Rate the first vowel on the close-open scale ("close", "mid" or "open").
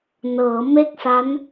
mid